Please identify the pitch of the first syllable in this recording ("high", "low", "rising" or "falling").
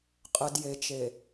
low